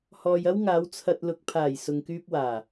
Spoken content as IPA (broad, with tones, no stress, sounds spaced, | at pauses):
h ɔː˨ j ɐ˥ w ŋ aː˨˧ w t͡sʰ ɐ˧ t̚ l ʊ˨ k̚ pʰ aː˨˩ j s ʊ˧ ŋ k yː˥ p̚ w aː˨˩